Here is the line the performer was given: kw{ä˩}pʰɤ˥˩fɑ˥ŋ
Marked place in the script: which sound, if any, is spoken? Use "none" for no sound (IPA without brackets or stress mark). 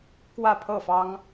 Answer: ä˥˧